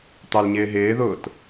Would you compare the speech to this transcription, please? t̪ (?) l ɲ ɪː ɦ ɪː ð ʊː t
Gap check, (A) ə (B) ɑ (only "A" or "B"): B